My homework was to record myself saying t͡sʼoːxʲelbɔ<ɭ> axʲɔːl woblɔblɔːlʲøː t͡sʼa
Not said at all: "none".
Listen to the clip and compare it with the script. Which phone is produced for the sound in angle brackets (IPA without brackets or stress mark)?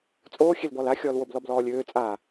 l